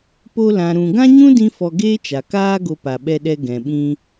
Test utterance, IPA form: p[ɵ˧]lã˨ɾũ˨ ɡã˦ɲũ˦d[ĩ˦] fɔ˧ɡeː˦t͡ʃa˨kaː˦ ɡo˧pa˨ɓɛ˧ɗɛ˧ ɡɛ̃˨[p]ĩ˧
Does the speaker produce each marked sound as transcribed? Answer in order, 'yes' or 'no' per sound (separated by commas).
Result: no, no, no